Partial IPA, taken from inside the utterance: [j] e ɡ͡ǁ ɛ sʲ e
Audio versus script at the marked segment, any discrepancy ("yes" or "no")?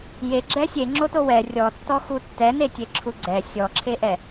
no